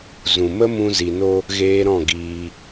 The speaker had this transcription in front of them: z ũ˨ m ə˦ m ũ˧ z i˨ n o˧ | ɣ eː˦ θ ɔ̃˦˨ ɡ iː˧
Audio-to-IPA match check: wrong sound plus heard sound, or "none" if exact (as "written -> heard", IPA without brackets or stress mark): θ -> ɾ